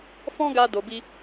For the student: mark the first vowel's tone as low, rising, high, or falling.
high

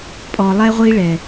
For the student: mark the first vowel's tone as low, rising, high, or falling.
low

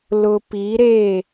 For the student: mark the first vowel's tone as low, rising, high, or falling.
low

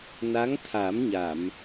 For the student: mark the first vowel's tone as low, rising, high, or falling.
rising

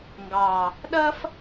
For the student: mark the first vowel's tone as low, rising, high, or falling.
low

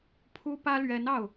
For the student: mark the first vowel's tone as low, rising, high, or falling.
high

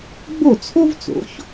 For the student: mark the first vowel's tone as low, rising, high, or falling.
falling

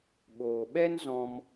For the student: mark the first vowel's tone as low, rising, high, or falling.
low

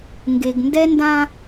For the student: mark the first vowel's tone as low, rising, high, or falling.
low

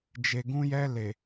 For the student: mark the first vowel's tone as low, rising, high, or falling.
low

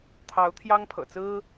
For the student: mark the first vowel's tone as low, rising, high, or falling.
rising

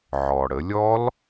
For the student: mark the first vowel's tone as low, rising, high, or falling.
low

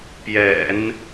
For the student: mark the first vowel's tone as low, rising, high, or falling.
low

